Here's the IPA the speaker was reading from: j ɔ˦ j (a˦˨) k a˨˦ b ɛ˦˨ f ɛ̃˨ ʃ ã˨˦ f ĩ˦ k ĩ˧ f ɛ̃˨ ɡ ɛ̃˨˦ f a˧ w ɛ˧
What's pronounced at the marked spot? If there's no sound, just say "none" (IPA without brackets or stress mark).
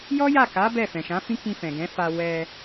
a˦˨